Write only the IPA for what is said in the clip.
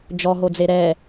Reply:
d͡ʒ ɔ ɦ o d͡z e ɾ ɛ

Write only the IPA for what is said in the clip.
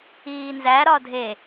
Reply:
iː n z æ ɾ ɒ dʱ e

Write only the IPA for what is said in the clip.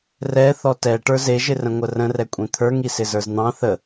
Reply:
r ɛ θ ɔ t ɛ ʈ ə˞ z e ʒ ɪ r ə̃ ŋʷ ə r ə̃ r ɛ kʷʼ ĩ t̪ʰ ə˞ ŋ i s ɪ z ə˞ z n̪ ɑ̃ θ ə

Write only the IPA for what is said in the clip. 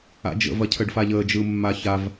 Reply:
a̰ d͡ʒ ə̰ v ɐ cʰ ə ɖ f a ʎ əː d͡ʒ ɯ mː a ç a v

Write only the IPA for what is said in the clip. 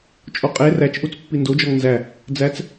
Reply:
t͡ʃʼ o qʼ e r æ t͡ʃ ʔ u t͡s pː i n d o d͡ʒ ɒ ŋ n z æ | d͡z æ t͡s

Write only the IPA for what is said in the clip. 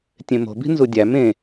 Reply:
tʲ ẽ m o̤ b i̤ n z u dʲ æ m ẽ

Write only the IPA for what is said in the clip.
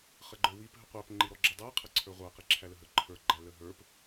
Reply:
χ ə ɡ͡ǃ ə˞ w i p ɦ ə qʷ æ p ŋ͡ǃ i ɾ ɔ ɡ͡ǁ ə dˤ æ qʰ ə ǀʰ ə˞ ʁʷ æ q i ǁʰ æ l ə ɦ ə ǃʰ ə˞ ɡ͡ǃ æ l ə ɦ ə˞ p

